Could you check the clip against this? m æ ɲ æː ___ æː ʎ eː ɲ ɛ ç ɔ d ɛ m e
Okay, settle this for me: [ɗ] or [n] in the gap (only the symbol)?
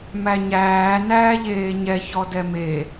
n